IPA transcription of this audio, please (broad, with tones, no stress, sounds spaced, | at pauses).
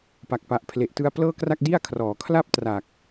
p a˨˩ k̚ p a˨˩ ʔ pʰ l e˨˩ ʔ t ɯ˧ a̯ p l ɤː˥˩ k r a˥˩ k̚ d i˥˩ a̯ kʰ r ɔː˩˦ kʰ l a˥˩ p̚ t r a˨˩ k̚